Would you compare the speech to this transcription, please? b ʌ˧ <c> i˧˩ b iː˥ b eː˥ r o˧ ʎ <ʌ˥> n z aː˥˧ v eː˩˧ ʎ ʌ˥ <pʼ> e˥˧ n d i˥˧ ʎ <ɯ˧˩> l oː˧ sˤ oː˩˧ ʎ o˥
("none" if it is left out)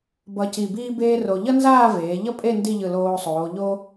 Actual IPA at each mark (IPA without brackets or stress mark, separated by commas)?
c, ʌ˥, pʼ, ɯ˧˩